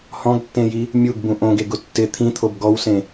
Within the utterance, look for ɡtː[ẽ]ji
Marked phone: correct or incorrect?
correct